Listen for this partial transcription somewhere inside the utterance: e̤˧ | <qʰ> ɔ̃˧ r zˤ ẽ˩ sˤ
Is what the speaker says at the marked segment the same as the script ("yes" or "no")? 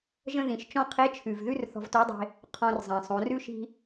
yes